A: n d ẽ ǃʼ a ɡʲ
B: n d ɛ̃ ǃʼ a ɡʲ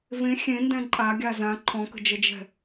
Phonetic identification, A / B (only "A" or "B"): B